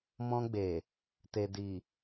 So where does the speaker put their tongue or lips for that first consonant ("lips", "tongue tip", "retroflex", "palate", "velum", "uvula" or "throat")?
lips